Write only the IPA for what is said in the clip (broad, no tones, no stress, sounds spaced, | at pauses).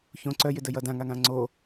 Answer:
ç õ ǀ œ j ɪ d ə j ʌ d ã ŋ a ŋ ã ŋ͡ǀ o